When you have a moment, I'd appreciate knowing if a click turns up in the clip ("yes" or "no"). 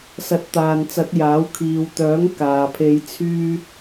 no